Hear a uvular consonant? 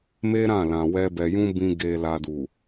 no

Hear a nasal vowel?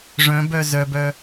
yes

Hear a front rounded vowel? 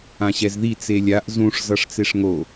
no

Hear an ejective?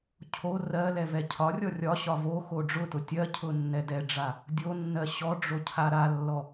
no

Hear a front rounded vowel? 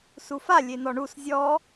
no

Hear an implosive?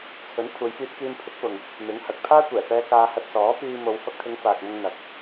no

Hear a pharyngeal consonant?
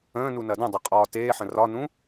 yes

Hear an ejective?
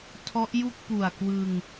no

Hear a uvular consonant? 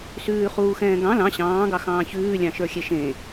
yes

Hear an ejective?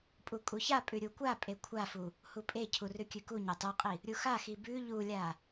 yes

